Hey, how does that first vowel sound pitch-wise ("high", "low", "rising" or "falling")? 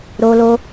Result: high